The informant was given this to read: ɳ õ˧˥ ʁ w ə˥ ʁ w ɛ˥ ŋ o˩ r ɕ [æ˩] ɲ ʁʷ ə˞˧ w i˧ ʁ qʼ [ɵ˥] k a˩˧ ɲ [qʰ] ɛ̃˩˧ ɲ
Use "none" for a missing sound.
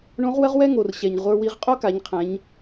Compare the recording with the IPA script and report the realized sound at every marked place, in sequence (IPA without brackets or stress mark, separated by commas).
ɛ˩, o˥, qʰ